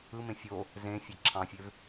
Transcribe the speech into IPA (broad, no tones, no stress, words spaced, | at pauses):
ɯmẽ fʲo | zẽfʲe ǁʰɑ̃fʲøv